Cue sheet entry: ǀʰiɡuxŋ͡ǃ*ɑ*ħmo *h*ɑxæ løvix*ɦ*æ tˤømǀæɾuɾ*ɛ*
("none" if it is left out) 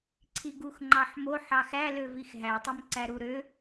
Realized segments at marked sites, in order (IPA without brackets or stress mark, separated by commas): ɑ, ħ, ɦ, ø